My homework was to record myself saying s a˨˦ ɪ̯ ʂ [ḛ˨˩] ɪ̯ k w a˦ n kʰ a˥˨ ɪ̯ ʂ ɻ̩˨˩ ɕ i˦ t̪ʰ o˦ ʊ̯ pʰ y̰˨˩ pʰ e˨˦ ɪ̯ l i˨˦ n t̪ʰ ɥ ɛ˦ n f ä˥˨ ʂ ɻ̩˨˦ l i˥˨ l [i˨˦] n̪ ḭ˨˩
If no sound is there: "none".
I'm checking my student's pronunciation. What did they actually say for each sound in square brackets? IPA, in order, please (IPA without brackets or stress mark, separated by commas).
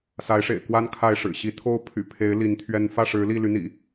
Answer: ḛ˨˩, y˨˦